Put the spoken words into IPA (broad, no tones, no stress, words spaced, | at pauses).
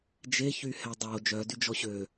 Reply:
d͡ʒeçyhɛ dˤo d͡ʒœdyd͡ʒɔ ɕø